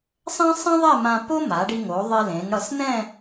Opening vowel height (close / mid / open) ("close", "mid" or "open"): mid